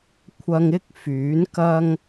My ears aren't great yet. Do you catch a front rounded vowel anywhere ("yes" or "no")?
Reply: yes